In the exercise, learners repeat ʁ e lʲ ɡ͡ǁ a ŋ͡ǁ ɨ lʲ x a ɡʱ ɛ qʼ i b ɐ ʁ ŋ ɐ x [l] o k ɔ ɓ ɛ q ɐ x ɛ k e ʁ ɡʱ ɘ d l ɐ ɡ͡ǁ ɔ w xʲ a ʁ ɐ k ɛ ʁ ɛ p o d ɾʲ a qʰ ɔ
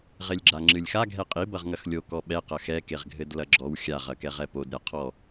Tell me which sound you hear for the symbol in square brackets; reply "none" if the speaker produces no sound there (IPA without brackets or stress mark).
lʲ